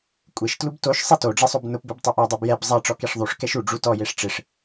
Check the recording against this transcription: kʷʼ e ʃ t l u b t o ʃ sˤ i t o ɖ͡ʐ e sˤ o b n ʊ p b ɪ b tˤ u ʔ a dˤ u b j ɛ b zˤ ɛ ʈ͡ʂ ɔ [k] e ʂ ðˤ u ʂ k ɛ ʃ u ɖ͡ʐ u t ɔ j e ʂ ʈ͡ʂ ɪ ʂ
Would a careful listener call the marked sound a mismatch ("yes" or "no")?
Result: no